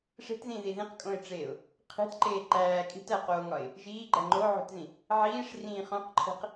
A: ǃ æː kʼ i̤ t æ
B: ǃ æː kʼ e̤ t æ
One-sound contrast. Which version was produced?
A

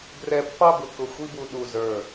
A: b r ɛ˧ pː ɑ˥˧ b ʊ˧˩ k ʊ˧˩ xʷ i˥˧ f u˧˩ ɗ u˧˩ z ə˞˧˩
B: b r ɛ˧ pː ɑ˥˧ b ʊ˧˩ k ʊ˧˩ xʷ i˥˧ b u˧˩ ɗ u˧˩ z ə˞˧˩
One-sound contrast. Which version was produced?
B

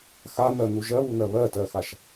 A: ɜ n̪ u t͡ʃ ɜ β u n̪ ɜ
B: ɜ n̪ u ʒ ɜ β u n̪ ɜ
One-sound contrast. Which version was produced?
B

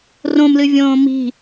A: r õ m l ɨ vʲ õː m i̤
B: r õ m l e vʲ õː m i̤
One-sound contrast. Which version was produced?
A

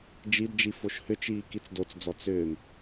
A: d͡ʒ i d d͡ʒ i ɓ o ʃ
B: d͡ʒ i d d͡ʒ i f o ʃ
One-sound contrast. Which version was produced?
B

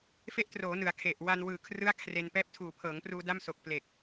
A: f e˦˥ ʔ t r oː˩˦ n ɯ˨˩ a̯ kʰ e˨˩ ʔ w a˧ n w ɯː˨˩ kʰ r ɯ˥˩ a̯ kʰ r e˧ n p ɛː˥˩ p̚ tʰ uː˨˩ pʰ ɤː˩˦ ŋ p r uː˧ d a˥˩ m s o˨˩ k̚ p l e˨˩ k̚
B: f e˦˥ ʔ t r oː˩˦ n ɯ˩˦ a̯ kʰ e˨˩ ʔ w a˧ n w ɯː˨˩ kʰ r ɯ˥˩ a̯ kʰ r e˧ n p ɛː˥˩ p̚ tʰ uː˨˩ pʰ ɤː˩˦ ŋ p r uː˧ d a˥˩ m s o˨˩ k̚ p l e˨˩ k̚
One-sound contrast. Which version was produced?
B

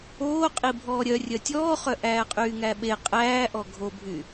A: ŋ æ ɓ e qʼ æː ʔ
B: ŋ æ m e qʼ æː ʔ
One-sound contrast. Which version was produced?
A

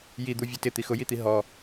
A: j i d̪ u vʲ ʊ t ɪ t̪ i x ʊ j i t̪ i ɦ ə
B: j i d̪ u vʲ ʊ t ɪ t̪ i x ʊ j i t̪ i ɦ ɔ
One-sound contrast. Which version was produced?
B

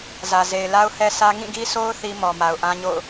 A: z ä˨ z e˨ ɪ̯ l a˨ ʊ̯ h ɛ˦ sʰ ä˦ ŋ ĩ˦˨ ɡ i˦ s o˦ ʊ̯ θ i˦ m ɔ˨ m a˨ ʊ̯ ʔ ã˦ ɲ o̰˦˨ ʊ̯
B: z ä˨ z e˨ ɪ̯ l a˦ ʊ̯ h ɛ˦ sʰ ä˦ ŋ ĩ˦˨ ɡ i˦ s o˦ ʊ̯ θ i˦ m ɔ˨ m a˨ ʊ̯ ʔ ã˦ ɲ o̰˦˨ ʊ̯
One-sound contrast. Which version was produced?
B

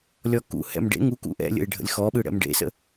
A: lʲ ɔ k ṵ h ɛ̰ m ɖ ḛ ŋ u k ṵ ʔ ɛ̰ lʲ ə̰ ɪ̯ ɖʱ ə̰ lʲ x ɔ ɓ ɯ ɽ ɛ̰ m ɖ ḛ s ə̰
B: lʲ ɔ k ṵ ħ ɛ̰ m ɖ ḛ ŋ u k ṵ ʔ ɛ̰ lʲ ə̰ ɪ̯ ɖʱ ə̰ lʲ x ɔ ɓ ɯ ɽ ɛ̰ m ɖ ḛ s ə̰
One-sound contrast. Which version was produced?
A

